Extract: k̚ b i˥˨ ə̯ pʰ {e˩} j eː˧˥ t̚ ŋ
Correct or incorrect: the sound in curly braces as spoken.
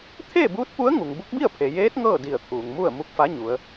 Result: correct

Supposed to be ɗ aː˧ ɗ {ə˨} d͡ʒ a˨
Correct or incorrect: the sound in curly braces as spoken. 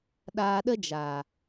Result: incorrect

